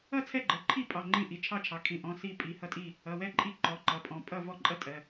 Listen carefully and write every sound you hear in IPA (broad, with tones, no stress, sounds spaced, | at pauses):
ʌ˥˨ t͡sʰ ɛ˥˨ ɡ͡ǃ ɜ˩˧˩ ǃʰ i˥˨ pʼ ɑ˩˧˩ ŋ͡ǃ ĩ˥˨ ʔ i˩˧˩ t͡ʃʰ ɑ˥˨ t͡ʃʰ ɑ˩˧˩ kʰ ĩ˩˧˩ ʔ ɔ̃˩˧˩ s i˥˨ pʼ i˩˧˩ h ʌ˥˨ tʼ i˥˨ | ʌ˩˧˩ w ɛ˥˨ ǃʼ i˥˨ ǃ ɔ˩˧˩ ǃ ʌ˩˧˩ pʼ ɔ̃˩˧˩ pʼ ʌ˥˨ v ɔ˥˨ ǃʼ ʌ˥˨ tʼ ɜ˩˧˩